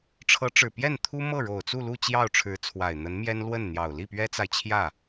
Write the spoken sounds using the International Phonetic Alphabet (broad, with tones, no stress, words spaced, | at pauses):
ʈ͡ʂʰɤ˧˥ʈ͡ʂɻ̩˨˩pjɛ˥˩nt̪ʰu˥ mɤ˥˩ɻo˨˩ʊ̯t͡su˥˧lu˥˧ t͡ɕjɑ˥˩ʊ̯ʈ͡ʂʰɻ̩˧˥t͡sʰwa˨˩ɪ̯ n̪ə˧˥nmjɛ˥n lwə˥˩nn̪jɑ˨˩ʊ̯ li˥˩pɥɛ˥t͡sa˨ɪ̯t͡ɕʰjä˥˩